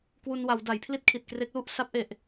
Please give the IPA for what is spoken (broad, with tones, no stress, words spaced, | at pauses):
kwu˧nwa˩˦wda˩˦jpʰli˥˩t̚ kʰi˨˩t̚kre˦˥k̚lu˥˩ʔ sa˦˥p̚ʔe˨˩ʔ